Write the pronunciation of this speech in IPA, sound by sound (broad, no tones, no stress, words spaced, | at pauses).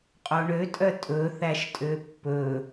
qʼoɳøtʼœ tʼɵ θæʃtʼøpːɵ